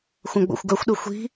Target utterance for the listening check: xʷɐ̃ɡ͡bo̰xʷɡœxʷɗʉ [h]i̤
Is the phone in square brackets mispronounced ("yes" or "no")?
yes